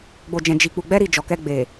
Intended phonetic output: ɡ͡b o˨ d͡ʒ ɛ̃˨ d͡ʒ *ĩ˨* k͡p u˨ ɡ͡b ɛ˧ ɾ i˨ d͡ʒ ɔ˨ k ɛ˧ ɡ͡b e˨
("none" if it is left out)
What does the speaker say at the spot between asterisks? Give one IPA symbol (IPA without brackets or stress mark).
i˨